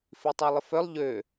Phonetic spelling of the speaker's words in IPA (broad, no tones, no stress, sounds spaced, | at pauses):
f i tˤ œ lˠ ɪ f œ lˠ ʎ ø